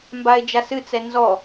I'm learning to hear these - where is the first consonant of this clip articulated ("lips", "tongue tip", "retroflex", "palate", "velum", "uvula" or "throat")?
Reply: lips